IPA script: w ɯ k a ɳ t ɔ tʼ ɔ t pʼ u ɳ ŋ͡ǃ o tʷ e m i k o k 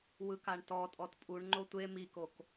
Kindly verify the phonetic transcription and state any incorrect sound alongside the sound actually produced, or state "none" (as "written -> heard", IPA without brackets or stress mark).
none